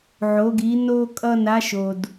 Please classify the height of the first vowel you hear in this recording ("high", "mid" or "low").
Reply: mid